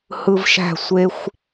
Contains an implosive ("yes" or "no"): no